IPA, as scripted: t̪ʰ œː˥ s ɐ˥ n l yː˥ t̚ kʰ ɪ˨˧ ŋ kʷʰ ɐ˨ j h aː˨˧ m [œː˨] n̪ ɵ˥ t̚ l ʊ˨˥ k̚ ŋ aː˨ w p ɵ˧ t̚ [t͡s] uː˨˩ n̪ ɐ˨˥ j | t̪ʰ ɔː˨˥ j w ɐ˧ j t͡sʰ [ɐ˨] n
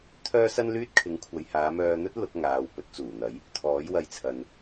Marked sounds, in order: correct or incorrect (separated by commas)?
incorrect, correct, correct